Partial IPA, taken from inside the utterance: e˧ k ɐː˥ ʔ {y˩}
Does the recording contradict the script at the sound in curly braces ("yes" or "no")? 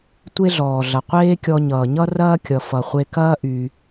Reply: no